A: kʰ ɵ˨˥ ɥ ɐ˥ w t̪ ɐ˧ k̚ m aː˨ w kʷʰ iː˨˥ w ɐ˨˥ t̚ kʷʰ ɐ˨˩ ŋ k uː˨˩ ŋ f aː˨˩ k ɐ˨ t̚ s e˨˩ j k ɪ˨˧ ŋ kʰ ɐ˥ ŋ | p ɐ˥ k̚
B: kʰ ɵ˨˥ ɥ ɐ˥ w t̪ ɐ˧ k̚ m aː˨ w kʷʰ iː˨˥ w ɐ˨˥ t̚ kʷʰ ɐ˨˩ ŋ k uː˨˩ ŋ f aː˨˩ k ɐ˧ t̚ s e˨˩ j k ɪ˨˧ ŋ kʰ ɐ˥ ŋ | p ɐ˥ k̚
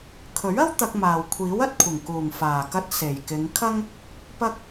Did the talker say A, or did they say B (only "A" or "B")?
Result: B